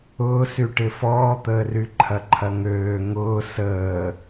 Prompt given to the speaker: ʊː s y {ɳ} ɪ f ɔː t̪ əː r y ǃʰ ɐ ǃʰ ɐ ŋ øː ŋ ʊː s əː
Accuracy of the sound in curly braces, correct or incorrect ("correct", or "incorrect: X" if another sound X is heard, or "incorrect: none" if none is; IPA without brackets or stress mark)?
incorrect: ʈ